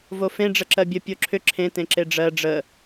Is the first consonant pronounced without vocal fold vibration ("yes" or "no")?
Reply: no